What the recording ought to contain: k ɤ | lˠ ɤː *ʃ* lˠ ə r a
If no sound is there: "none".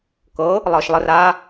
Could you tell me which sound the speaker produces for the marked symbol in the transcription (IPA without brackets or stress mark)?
ʃ